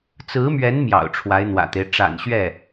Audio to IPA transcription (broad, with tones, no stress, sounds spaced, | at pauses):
t͡s ɹ̩˧˥ m ɥ ɛ˧˥ n m j ɑ̰˨˩ ʊ̯ ʈ͡ʂʰ w a˧˥ ɪ̯ n̪ w ä̰˨˩ t̪ e˦ ɪ̯ ʈ͡ʂ a̰˨˩ n ɕ ɥ ɛ˥˩